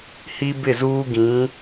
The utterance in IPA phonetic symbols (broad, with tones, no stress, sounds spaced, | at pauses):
h i˦ b ɪ˦˨ z uː˦ ɡ ĩ˨˦